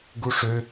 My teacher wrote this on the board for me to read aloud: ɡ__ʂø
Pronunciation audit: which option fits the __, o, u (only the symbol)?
u